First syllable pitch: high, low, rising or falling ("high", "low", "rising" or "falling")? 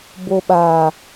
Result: low